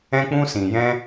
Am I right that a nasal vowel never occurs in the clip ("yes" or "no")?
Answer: no